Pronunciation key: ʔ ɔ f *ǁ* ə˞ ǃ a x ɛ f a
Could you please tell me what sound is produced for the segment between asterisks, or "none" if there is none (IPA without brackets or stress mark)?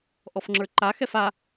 ŋ͡ǁ